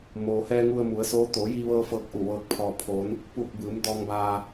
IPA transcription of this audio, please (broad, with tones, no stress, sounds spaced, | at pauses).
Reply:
m oː˩ h ɛː˧ ŋ u˧ ə̯ m u˩˧ ə̯ s oː˧˥ t̪ o˩˧ j i˧ ʋ ɤː˧ f ɤː˧ k̚ ʔ u˧˩ ʋ ɤː˧ k̚ pʰ ɔː˧ pʰ o˧˥ n | p uː˧˩ k̚ b ɯː˩˧ m d ɔː˧ ŋ b aː˧